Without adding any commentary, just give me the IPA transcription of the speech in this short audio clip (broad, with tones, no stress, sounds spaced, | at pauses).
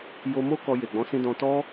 j o˧ m o˦ k ɔ˧ j e˨ ɡ͡b ɔ̃˨˦ s ĩ˧ d ɔ̃˧ t ɔ˦